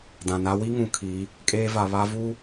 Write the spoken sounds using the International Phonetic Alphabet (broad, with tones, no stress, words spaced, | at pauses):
dã˨na˦ wi˦ŋũ˨ kʰi˨˦ | kʼeː˦va˨ βa˦vu˦